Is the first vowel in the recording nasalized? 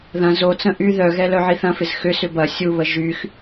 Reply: yes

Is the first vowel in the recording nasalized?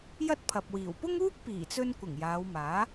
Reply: no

